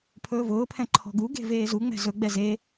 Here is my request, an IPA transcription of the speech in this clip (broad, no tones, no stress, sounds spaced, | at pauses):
pʰ ɵː v ʊː pʰ ɛ̃ ǃʰ ɔ̤ ɡ u ɡ e̤ v eː z u ŋ͡m ɛ̤ z ɵ ɡ͡b ɛ z e